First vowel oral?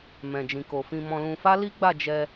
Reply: no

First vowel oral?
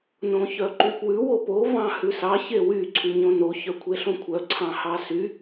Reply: no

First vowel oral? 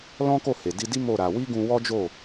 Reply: no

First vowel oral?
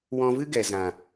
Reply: no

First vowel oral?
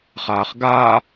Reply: yes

